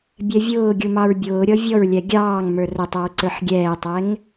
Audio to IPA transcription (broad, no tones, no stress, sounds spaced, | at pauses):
bʲ ɛ vʲ ʊː ɡʲ u m ɑ ɹ bʲ ʊː ɾʲ ɔ vʲ ɔ ɹ lʲ æ ɡʲ ɑː ŋ m ə˞ r ə tˤ ə ɹ ǀ ə˞ ħ ɡʲ ɛː tˤ ɛ ŋ